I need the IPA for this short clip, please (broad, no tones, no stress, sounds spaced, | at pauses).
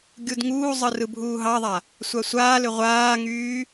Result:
ɡʲ u d ŋ uː zˤ ɯ r ɯ bʱ uː ɦ ɑ ðˤ a | sʷ a sʷ aː l ʏ ʁʷ aː ŋ yː